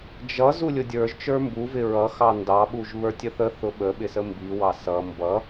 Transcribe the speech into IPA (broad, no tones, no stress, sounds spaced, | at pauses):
d͡ʒ ʌ z u lʲ ʊ dʲ ə˞ ʒ t͡ʃ ə˞ m b u v ɪ ɹ ʌ x ɑ n d ɑ ɓ u ʒ β ə˞ tʲ ə θ ə θ ʊ ɓ ə ɓ ɪ s ə m b i w ɑ s ʌ m b ʌ